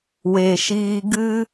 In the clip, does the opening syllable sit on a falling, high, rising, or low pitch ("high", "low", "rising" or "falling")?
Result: low